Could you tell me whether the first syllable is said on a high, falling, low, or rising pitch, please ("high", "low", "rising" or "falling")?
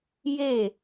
falling